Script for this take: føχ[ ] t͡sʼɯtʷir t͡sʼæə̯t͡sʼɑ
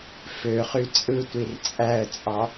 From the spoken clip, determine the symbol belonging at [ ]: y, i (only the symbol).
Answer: y